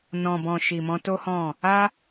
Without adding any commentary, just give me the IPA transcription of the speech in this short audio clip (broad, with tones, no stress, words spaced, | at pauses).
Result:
nɔ̃˨bɔ̃˨ ʃi˨mɔ̃˧to˦hɔ̃˦˨ | a˦